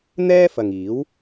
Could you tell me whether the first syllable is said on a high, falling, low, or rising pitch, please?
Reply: high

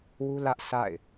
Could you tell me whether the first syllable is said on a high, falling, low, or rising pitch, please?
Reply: high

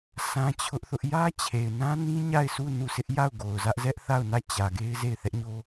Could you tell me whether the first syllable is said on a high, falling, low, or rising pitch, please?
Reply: high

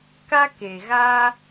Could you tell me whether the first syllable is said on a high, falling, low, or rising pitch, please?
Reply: high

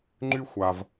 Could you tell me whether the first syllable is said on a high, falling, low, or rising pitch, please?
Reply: high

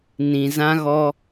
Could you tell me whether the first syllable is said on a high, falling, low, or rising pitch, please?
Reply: low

